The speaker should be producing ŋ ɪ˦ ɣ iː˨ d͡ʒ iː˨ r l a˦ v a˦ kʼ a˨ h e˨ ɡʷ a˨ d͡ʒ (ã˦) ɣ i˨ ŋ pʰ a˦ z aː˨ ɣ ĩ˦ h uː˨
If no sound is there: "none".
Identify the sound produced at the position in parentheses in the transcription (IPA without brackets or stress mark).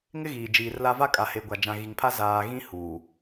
ã˨